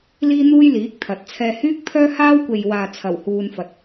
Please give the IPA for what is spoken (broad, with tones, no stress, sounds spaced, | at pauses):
l iː˥ n̪ uː˥ j l iː˨˥ k̚ t̪ʰ ɐ˨˥ t̚ t͡sʰ ɛː˥ h yː˥ k̚ pʰ œː˥ h aː˥ w kʷ e˨ j w aː˨ t͡sʰ ɐ˨˩ w h uː˥ n f ɐ˧ t̚